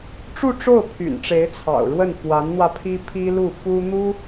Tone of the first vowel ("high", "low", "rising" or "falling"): falling